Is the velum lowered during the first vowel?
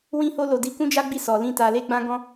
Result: yes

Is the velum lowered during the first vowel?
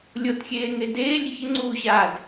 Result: no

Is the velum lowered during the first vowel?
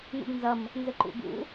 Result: no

